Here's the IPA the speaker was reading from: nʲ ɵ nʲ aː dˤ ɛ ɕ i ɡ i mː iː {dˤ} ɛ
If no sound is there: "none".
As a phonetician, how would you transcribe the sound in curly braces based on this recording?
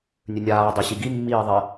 ðˤ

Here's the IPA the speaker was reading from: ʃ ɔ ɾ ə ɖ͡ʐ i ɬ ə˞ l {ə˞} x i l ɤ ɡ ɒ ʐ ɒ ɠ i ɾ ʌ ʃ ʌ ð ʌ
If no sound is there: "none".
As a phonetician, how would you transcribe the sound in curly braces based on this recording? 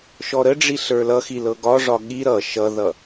ʌ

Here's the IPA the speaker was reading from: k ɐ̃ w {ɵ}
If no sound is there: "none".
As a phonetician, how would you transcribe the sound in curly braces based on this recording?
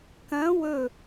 ɵ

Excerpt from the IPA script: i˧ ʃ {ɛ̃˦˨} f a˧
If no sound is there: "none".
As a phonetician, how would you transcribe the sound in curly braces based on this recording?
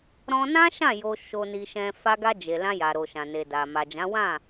ɛ̃˧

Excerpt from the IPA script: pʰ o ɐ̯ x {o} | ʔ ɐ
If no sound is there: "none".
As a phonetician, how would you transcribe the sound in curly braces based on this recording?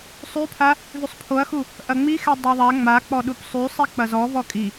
u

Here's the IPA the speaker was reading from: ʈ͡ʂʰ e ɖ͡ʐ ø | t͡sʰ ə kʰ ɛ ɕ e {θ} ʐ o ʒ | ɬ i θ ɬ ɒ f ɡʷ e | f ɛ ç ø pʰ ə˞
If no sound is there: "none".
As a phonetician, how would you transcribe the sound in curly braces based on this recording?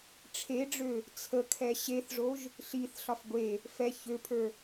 θ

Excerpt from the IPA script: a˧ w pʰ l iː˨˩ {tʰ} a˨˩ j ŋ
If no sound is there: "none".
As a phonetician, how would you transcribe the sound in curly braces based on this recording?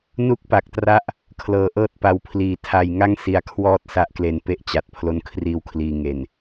tʰ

